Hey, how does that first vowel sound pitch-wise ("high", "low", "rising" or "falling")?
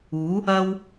rising